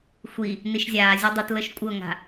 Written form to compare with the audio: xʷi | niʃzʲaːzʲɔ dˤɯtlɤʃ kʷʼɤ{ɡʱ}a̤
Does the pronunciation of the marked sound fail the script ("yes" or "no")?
yes